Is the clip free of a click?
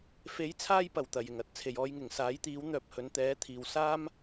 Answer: yes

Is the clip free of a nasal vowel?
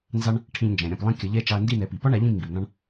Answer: no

